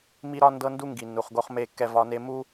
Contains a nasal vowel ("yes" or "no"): no